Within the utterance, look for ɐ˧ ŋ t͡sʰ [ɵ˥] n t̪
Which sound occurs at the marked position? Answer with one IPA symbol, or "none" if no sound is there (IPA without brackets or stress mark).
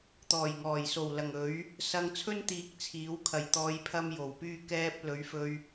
ɵ˥